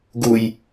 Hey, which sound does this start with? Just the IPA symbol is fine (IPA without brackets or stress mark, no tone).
ɡ